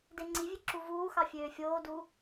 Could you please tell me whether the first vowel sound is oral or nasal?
oral